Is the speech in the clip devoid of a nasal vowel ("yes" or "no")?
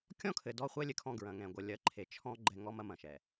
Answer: no